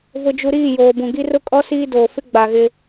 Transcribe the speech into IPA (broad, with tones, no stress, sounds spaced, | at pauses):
v ʊ˨ d͡ʒ u˨ ɾ iː˦˨ j oː˨ b ũ˨ ɡ i˦ r ʊ˦ kʼ ɔ˦ s iː˦ d oː˨ f ɪ˦ ɡ͡b a˨ ɣ ɪ˦